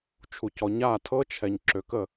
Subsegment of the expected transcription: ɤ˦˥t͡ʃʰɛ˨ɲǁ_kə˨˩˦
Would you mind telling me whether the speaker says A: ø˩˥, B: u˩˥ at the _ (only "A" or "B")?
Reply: A